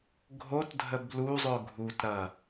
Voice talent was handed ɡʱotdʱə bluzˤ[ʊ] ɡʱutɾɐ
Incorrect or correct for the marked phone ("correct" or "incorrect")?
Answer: correct